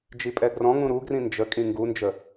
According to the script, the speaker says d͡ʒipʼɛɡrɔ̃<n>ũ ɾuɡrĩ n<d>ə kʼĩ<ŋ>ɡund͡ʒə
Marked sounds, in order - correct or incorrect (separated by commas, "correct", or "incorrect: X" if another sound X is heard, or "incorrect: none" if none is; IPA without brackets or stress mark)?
incorrect: ŋ, incorrect: d͡ʒ, correct